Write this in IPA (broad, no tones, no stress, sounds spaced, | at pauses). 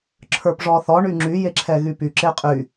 ǁʰ ə˞ p ʐ ɔ θ ɔ ɳ y ŋ͡ǁ y j e ǁʰ ɛ ɣ y p y ǁ e qʼ y